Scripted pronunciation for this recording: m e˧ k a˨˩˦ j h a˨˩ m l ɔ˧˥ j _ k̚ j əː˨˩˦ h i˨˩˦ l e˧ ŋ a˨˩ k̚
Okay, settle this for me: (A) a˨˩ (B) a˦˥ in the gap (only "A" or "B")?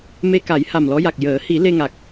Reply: A